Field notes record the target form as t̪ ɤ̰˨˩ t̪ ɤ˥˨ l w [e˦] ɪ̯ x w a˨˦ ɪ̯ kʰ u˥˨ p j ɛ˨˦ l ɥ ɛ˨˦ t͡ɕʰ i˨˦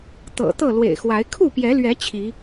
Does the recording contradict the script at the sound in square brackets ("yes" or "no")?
yes